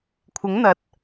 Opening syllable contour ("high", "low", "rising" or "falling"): rising